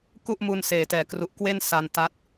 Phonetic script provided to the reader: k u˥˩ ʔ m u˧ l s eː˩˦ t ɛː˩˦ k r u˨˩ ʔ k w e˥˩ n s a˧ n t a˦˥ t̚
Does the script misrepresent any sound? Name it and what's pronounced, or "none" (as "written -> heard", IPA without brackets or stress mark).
l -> n